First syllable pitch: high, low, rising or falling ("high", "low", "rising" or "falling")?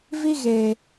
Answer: high